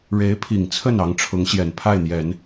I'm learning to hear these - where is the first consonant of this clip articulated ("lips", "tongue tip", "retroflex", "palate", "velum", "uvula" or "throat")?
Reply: retroflex